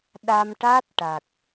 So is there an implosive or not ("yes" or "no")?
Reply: yes